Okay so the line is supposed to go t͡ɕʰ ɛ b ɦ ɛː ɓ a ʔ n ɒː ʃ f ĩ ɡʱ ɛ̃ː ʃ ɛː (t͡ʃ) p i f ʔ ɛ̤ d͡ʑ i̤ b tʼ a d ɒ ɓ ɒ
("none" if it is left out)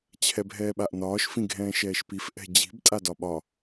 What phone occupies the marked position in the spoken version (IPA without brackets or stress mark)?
ʃ